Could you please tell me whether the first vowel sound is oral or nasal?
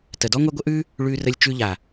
oral